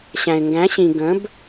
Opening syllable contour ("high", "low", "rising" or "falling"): low